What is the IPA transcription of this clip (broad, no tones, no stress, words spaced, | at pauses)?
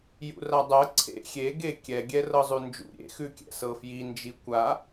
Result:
jṵradˤɐ ǀʰḛ xʲe ɡekʲɛ ɡʲɛrɤzˤʉnd͡ʒṵ ɾʲḛ xʉkʲɛ̰sɤfji nd͡ʒikʷa